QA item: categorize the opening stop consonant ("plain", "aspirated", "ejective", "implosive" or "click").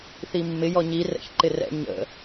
click